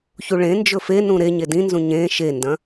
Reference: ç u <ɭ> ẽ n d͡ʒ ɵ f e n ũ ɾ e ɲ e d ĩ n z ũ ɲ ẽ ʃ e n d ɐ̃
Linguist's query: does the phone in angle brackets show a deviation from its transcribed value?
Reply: no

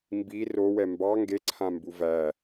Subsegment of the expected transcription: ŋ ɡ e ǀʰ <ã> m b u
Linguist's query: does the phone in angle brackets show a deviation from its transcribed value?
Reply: no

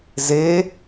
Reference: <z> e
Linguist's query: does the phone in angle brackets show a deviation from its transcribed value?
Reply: no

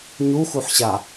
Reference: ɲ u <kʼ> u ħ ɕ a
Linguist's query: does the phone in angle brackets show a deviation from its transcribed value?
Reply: yes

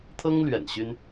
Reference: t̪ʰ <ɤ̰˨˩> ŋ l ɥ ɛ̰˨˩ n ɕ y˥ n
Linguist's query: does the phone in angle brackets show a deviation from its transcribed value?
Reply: yes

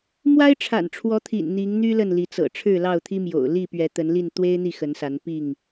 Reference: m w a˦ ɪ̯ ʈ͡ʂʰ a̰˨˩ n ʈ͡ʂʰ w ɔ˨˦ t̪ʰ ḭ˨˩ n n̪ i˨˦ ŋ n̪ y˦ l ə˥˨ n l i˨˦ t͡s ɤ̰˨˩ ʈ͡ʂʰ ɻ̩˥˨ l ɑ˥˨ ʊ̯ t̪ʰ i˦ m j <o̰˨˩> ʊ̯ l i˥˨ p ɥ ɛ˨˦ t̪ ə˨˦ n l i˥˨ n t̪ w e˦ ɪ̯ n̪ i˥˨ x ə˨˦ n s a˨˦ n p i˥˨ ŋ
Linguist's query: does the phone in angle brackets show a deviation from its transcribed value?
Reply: no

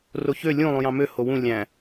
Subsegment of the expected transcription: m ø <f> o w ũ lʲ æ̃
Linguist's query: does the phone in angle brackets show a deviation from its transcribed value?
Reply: yes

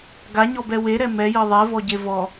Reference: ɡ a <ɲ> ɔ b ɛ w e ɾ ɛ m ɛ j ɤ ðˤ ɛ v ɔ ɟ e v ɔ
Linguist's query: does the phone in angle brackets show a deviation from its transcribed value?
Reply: no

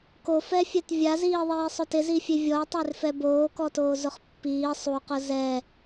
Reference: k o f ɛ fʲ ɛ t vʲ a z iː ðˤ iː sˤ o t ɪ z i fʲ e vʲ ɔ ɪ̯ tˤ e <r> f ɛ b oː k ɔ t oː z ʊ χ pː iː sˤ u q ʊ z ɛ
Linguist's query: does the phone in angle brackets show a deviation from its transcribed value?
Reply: no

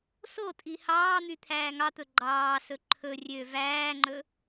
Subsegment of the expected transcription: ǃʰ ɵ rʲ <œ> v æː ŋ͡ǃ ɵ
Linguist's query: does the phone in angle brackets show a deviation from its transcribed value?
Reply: yes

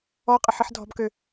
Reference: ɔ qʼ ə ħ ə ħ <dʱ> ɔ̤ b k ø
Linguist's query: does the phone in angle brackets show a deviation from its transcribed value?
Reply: no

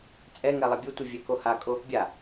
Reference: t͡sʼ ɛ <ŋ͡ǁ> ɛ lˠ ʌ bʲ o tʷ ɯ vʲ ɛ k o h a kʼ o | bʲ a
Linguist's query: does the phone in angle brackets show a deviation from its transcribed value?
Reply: yes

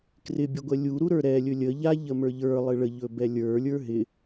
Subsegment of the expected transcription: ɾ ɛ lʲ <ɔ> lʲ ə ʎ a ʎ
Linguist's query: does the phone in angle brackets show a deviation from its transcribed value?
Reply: yes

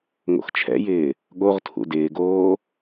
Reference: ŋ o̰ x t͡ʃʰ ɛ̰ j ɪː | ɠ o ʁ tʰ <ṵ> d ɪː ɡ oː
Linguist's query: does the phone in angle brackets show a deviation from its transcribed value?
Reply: no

